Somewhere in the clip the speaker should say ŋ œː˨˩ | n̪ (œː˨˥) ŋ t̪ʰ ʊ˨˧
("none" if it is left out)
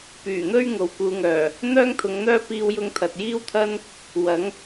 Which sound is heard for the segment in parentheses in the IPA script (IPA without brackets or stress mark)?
œː˥